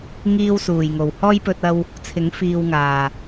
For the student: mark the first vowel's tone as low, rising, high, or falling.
high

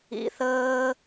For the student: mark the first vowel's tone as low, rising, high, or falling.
low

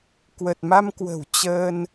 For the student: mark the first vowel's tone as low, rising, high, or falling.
low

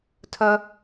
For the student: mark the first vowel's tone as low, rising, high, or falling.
high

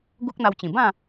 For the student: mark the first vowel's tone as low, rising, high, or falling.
high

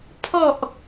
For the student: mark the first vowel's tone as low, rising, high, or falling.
low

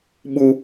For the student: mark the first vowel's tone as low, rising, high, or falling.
high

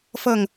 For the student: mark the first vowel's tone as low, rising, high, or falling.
falling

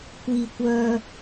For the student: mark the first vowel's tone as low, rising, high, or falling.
low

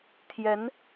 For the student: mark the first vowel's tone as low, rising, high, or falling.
rising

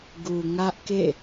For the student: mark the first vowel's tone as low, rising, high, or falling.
low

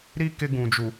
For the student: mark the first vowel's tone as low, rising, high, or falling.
high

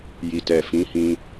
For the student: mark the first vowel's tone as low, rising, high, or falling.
low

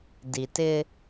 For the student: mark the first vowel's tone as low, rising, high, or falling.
low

